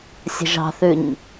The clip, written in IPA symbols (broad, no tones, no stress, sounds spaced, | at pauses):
sʲ ə̤ ʒ ɑ̤ θ ʉ ɲ